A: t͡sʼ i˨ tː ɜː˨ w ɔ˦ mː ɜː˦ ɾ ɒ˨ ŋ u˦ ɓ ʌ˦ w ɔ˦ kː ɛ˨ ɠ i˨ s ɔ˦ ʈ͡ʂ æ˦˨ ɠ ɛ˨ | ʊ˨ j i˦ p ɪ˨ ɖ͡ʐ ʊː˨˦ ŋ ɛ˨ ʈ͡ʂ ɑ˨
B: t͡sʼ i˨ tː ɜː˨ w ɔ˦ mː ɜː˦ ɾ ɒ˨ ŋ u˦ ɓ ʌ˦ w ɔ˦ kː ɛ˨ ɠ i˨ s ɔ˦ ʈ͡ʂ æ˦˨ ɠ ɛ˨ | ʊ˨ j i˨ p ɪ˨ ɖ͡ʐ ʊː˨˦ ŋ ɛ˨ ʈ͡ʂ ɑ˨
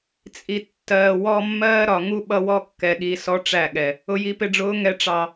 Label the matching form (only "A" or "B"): B